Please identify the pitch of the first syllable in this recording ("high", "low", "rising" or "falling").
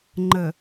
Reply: low